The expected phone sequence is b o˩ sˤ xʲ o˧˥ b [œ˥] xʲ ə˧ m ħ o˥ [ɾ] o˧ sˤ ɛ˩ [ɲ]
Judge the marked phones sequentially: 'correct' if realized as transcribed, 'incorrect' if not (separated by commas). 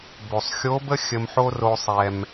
incorrect, incorrect, incorrect